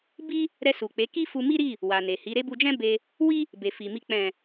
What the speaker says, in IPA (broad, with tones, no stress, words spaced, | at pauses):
bi˦ | ɾɛ˧su˨k͡pe˨˦ ki˦fu˧mi˦ɾi˦˨ | wa˨ne˨ hi˨˦ɾe˦ bu˧d͡ʒɛ̃˦be˧ | wi˦ | be˨fi˨mi˧ k͡pɛ̃˨